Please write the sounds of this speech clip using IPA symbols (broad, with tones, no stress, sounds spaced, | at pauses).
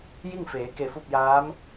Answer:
j i˥˨ ŋ f eː˩˧ k e˧˩ f u˥˨ p̚ j aː˧˥ m